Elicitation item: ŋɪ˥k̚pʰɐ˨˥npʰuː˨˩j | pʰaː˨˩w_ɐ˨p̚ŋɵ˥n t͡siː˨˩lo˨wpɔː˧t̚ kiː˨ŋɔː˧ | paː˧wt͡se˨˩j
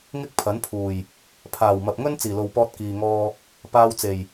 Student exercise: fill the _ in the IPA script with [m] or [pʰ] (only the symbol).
m